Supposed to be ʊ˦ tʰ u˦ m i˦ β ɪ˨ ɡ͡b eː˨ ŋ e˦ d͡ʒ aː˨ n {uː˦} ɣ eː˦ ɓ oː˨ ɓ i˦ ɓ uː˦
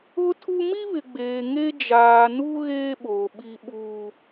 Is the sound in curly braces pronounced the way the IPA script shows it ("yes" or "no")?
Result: no